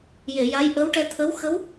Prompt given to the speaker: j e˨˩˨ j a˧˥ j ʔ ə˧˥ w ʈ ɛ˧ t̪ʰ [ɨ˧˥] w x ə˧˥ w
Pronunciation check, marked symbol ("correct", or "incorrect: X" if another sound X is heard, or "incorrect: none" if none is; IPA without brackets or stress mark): incorrect: ə˧˥